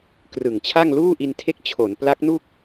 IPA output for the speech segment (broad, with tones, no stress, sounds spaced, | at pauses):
k r ɯ˨˩ ŋ t͡ɕʰ a˥˩ ŋ l uː˥˩ ʔ i˧ n tʰ e˦˥ k̚ t͡ɕʰ o˩˦ n p l a˦˥ k̚ n u˥˩ k̚